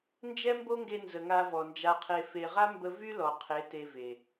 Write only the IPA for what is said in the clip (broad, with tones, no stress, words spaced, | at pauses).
nd͡ʒɛ˦mbo˦ŋɡe˧nzə˨ ŋa˧vɔ˨nd͡ʒa˧qʰe˧ fe˨ʁa˦mbə˧ vy˦ lɔ˨qʰe˨˦ te˧ve˨